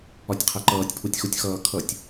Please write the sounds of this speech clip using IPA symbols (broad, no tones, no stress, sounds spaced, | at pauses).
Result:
ɒ tʲ qʰ ɛ ǃ ʌː tʲ pʰ u tʲ x u tʲ x ʌː kʰ ʌ tʲ